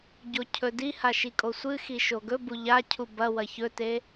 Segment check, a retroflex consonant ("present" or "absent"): absent